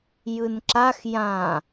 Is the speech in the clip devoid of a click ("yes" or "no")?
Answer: no